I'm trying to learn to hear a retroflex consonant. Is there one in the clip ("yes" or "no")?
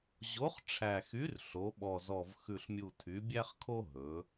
yes